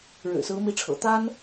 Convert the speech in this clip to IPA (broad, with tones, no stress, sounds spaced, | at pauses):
ɻ ɻ̩˨˩ s ɹ̩˧˥ m i˧˥ ʈ͡ʂʰ ɤ̰˨˩ t̪ a˥ n